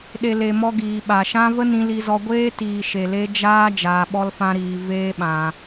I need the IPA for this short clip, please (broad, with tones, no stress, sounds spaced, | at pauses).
ɗ e˨ l e˨ m ɔ˧ ɡ iː˨ ɓ a˨ ʃ ã˦ v ə˦ n ĩ˧ l i˧ z ɔ˧ ɡʷ eː˦ t iː˨ ʃ e˨ l e˧ d͡ʒ aː˦ d͡ʒ aː˧ ɓ ɔ˦ l f ã˦ ɾ iː˧ v eː˦ ɓ ã˧